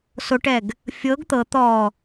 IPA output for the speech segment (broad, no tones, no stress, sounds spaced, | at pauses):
s o ʈ ɛ ɡ | fʲ ɤ ɡ t̪ ɤ t̪ ɔ